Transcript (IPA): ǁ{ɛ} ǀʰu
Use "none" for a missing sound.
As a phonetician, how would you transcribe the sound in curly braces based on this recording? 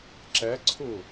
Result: ɛ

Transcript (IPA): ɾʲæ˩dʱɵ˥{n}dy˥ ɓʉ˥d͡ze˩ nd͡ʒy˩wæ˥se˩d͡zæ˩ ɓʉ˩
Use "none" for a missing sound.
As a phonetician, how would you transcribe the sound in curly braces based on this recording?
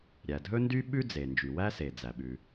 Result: n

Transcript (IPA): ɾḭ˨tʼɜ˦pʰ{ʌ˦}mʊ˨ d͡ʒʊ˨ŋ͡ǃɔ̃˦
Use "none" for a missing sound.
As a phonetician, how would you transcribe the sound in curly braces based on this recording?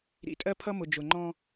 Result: ʌ˦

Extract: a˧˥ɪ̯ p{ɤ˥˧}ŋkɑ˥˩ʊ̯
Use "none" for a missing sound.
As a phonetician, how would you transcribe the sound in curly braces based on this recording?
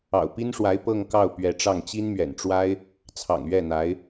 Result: ɤ˥˧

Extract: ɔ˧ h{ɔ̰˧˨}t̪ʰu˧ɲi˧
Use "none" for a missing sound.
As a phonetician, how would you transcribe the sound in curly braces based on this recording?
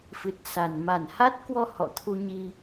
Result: ɔ̰˧˨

